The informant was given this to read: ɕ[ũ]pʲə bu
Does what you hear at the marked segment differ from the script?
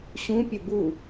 no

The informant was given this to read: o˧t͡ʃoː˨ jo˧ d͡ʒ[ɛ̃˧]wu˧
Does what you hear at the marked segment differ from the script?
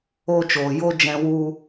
no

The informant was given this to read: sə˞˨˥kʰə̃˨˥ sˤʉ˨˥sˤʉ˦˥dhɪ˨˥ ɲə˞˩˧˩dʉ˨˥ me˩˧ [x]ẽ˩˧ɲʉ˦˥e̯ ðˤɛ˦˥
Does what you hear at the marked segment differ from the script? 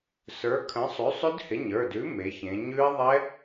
yes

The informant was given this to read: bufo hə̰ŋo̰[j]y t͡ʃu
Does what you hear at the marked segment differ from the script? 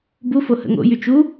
no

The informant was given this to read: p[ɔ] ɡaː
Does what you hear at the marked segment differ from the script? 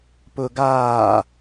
yes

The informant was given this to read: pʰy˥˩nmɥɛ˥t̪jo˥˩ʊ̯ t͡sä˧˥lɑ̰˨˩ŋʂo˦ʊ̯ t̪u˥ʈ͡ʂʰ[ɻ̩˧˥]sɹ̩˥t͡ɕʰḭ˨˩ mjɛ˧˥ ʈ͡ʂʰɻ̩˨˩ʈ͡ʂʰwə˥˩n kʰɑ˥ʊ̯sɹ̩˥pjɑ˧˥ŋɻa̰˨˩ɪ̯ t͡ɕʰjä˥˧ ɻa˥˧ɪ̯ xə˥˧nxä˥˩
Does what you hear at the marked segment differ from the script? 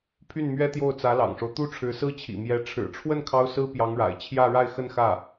no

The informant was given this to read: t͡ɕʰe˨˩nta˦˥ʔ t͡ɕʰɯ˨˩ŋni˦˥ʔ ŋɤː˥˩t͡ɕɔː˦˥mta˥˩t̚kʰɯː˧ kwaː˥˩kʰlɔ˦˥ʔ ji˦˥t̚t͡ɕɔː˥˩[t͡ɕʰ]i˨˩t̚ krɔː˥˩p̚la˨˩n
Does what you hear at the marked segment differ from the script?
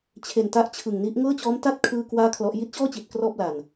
yes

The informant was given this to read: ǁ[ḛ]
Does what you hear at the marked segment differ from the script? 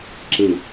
yes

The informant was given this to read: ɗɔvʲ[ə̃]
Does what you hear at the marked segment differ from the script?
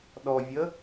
yes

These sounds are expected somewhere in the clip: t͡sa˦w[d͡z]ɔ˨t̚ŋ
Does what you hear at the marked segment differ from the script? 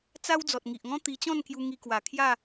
no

